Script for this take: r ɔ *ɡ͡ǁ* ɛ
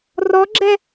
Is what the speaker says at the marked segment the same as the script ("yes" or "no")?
yes